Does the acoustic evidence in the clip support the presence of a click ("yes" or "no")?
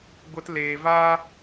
no